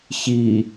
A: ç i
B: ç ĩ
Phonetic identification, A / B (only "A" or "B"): A